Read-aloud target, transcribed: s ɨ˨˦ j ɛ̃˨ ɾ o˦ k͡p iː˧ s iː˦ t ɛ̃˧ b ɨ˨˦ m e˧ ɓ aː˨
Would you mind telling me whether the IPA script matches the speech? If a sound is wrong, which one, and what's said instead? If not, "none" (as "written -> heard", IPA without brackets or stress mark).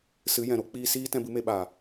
none